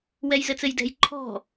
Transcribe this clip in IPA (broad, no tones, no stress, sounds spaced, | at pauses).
w ɛ j z ɘ t͡s ɘ j d ɛ̤ j ǃʰ ɔ̤